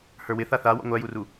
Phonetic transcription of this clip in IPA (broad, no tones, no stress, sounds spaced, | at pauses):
h ə˞ w ɪ θ a θ a w ɔ̰ ŋʷ æ j u r u